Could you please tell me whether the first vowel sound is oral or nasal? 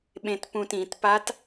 nasal